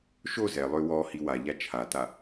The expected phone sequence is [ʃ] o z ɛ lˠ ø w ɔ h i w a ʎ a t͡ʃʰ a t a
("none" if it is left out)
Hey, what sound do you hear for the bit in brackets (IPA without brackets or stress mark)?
ʃ